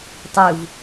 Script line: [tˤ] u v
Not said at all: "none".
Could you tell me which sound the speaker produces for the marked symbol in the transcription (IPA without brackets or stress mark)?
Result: tˤ